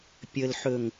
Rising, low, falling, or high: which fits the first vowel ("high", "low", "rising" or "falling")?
low